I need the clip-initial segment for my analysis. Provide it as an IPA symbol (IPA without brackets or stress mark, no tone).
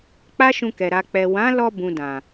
k͡p